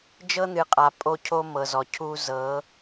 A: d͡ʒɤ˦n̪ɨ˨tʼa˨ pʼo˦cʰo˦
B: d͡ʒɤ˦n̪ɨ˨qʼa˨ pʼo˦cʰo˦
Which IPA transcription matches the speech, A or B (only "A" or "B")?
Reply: B